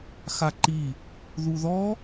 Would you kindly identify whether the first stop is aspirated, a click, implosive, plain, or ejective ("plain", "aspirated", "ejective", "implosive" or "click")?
click